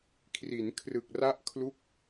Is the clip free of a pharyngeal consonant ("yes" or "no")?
yes